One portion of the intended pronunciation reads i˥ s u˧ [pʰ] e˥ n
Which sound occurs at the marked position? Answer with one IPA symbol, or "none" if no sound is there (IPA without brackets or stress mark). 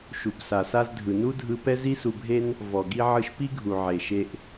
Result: bʱ